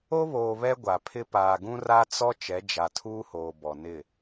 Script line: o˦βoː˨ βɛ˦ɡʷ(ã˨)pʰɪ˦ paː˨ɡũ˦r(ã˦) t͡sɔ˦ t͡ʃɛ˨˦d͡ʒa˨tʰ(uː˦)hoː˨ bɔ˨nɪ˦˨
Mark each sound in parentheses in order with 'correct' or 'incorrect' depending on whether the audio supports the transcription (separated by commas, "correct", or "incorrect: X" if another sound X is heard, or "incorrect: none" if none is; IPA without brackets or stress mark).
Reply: incorrect: a˨, incorrect: a˦, correct